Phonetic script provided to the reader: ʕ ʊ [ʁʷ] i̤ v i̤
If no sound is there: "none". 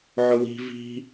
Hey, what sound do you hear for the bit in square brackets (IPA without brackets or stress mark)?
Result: w